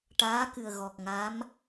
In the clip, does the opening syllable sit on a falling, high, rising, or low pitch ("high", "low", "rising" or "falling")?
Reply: rising